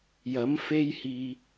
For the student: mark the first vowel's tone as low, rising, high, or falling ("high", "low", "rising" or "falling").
rising